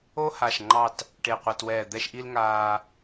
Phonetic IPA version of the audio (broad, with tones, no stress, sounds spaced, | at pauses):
o˥ h a˧˩ ʃ ŋ͡ǃ ɑ˥˧ t | ʈ e˧˩ qʷ a˧ t w ɛː˧˩ d̪ ɛ˥˧ ʃ ʔ i˥ l ŋ aː˧